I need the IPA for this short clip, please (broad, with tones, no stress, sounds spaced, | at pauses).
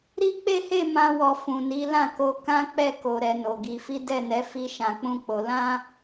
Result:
ɾ i˦ k͡p e˦ h e˦˨ m ã˧ w ɔ˨ f ũ˨ n i˨˦ l ã˦˨ k o˧ k ã˦ k͡p ɛ˦˨ k o˨ ɾ ɛ˧ n o˨ ɡ i˨˦ f i˦ d ɛ˦˨ n ɛ˨˦ f i˦ ʃ ã˧ k͡p ũ˦ k͡p o˧ l ã˦